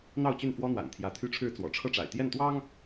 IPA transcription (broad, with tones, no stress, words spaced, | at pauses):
n̪ɑ˥˨ʊ̯t͡ɕy˥˨nfwɔ˦n̪wa̰˨˩n t̪ʰjä˨˦t̪ʰy˥˨ʈ͡ʂʰɻ̩˥˨ t͡swɔ̰˨˩ʈ͡ʂʰɤ˥˨ ʈ͡ʂa̰˨˩ɪ̯t̪jɛ˥˨nt̪wɑ˦ŋ